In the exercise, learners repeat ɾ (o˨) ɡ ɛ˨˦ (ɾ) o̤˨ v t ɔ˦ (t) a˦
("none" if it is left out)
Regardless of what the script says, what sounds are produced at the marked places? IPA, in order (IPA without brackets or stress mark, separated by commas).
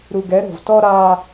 u˨, ɾ, ɾ